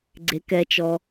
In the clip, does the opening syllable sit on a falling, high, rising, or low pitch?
rising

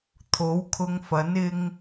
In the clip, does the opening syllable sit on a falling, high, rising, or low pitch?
rising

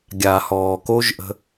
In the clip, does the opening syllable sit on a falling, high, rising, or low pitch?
low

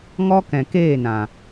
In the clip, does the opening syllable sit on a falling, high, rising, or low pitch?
high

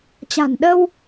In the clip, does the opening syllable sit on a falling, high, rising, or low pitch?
low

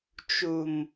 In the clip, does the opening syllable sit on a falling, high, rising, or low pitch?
low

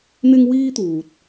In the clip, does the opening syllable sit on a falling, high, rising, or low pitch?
high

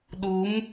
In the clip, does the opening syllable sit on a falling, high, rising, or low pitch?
rising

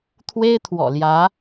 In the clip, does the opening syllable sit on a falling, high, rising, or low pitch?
high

